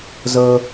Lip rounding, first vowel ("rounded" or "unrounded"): unrounded